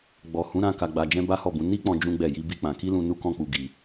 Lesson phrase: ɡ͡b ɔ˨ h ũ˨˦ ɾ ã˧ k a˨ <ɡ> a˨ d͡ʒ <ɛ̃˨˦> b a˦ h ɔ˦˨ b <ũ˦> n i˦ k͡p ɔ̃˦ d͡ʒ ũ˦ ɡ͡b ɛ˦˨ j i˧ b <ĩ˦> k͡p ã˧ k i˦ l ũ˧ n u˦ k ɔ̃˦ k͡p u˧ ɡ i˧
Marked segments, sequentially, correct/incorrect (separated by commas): incorrect, incorrect, incorrect, incorrect